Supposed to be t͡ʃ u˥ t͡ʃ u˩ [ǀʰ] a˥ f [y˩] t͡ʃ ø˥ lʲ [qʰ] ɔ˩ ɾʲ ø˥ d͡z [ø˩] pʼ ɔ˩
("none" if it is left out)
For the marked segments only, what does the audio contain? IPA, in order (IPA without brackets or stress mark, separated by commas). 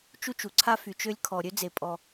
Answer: ǀʰ, y˩, kʰ, e˩